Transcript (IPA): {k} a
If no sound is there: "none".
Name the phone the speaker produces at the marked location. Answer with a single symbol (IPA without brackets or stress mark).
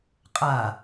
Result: qʼ